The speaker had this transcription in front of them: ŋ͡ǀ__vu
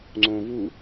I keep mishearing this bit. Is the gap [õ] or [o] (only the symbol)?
õ